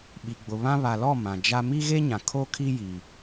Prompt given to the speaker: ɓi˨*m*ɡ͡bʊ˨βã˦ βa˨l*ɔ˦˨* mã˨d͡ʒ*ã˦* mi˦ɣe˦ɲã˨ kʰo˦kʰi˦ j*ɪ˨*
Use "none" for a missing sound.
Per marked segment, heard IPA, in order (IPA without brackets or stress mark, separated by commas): none, ɔ˦˨, a˦, i˨